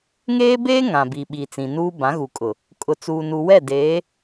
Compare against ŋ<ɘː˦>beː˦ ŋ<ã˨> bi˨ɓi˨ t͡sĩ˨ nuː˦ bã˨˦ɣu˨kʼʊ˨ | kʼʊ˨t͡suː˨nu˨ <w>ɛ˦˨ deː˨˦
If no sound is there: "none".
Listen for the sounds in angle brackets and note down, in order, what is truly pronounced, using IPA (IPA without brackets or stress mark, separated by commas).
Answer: eː˦, ã˨, w